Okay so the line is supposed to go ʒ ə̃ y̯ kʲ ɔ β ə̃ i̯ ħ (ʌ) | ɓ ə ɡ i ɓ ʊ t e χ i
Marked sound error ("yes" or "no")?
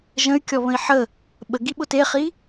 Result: yes